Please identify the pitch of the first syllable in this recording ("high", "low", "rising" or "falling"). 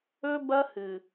high